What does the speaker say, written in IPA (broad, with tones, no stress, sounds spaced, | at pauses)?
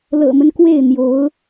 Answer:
l ɤ̰˨˩ m ə˦ n k w e˥˩ ɪ̯ n̪ j o˧˥ ʊ̯